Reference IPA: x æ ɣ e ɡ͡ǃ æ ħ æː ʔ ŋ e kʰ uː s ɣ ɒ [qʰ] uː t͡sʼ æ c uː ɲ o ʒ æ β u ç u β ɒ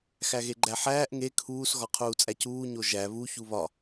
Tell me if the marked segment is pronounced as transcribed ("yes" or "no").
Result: yes